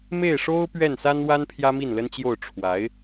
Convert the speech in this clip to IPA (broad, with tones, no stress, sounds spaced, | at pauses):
m e˥˩ ɪ̯ ʂ o˥ ʊ̯ p ɥ ɛ˥˩ n s a˥ n w a˥ n pʰ j ä˥ m i˥˩ n l ə˥ n t͡ɕ j o˥˩ ʊ̯ ʈ͡ʂʰ w a˧˥ ɪ̯